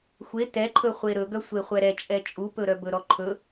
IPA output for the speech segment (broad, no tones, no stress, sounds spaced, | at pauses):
xʷ e t ɛ ǃʰ ɵ χʷ e ɾ ɵ ɡ œ sʷ e χʷ ɛ ɾ ɛ t͡ʃʼ ɛ t͡ʃʼ u p ɵ ɾ œ b ɵ ɾ ɔ ǃʰ ɵ